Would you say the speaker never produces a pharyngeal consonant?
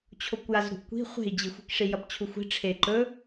yes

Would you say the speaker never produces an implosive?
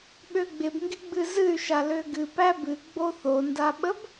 no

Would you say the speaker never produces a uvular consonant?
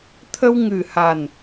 yes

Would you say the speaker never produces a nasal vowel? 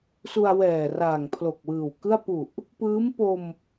yes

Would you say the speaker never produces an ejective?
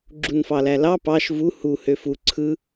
yes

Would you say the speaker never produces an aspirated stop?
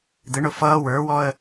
yes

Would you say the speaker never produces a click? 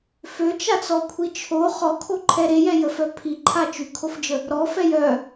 no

